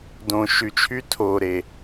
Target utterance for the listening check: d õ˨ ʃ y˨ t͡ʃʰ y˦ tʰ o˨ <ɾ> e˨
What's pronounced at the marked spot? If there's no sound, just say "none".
ɾ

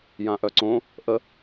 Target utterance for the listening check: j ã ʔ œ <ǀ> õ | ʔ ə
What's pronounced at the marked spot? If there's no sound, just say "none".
ǀ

